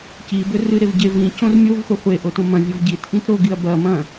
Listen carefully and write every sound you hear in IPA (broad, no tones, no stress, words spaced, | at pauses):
cibɵ rɨɾev ɟe vĩ cõrmʲovχʷe χʷeʔo tõmɐ̃vʲov ɟitʔĩt ɾoɡiɐ̯ bɐ mɐ̃